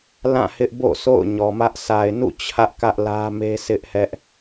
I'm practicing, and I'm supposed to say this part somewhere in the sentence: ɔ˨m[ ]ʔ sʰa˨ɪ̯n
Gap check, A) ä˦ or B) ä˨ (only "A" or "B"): A